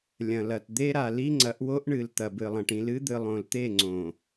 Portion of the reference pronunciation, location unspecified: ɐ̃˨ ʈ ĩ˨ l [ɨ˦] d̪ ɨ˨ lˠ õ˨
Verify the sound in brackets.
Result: correct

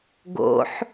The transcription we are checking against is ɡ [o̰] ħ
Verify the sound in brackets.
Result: correct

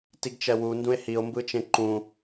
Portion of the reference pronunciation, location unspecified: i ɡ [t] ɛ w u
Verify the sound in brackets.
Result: incorrect: t͡ʃ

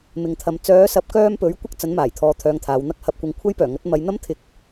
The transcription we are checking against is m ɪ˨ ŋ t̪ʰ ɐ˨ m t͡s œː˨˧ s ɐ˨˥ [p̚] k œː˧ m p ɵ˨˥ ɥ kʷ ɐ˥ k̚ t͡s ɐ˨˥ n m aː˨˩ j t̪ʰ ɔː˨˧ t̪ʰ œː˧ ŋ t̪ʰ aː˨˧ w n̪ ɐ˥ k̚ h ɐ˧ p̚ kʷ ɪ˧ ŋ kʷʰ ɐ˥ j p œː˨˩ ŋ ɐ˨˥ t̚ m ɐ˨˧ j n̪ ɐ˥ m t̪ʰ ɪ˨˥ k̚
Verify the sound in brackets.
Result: correct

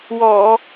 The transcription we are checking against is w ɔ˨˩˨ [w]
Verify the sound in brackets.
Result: incorrect: none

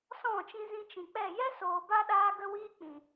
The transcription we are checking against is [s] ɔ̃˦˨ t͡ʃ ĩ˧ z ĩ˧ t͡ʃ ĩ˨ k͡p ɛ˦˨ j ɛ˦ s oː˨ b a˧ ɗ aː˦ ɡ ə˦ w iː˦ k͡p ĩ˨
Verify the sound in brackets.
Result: correct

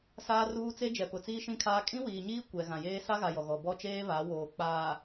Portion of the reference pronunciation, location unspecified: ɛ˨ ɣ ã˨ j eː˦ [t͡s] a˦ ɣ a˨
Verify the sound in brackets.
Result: incorrect: s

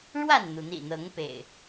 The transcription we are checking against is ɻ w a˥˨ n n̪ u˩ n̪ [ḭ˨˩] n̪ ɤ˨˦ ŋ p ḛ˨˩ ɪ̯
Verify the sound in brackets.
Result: correct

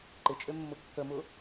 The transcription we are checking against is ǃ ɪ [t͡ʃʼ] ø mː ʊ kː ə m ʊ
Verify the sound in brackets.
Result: correct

